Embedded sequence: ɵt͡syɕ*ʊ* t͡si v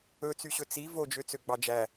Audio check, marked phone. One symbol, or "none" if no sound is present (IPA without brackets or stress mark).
ɵ